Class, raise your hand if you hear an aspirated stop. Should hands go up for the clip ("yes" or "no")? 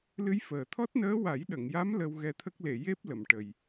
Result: yes